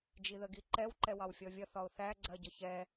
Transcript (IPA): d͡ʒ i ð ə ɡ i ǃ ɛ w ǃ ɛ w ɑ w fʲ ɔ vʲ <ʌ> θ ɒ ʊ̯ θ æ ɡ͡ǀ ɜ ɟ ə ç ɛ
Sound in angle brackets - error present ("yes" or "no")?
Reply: no